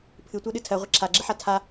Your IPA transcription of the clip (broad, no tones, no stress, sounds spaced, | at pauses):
pʰ ɨ tʷ ɜ ɗ ɨ tʰ ɜ ʁʷ ɪ ǁʰ a ɡ͡ǁ ɪ ħ a tʰ a